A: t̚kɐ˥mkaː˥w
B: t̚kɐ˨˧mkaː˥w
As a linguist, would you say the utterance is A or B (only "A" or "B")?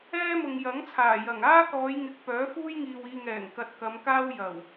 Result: B